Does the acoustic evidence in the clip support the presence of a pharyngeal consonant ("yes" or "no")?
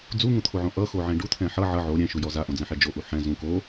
yes